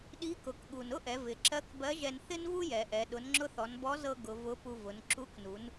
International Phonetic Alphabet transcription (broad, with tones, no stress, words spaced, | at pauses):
ɗi˧˥kʊ˩˧kɠu˩n ʊ˥ʔɛ˩˧ vɪ˩˧ǁɜ˧˥kbɜ˧˥ʒɛ˧n θɪ˥nvu˥jɛ˩˧ʔɛ˩˧ ɗʊ˩˧nŋ͡ǁʊ˧θɔ˩˧n bɔ˧˥zɤ˧ ɡʊ˩˧ vʊ˧˥pu˧ vʊ˩˧n ǁu˧˥knu˩˧n